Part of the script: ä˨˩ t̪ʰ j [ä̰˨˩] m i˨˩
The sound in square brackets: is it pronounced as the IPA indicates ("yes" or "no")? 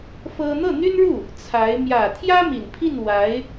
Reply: no